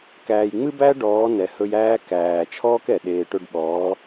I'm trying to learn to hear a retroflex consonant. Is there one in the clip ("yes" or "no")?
yes